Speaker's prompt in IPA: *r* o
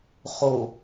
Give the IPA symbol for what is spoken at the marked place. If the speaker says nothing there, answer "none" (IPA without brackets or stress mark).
χ